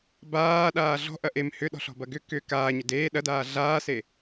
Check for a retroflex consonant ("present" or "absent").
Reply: absent